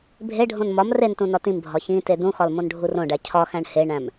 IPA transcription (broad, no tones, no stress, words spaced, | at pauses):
bʱeɖʱõn mɒm rentũ nɒtĩmbʱɒ çĩte dũxɒl mõnɖʱurõɖæ cʰɒxæ̃ɳ heɳæ̃m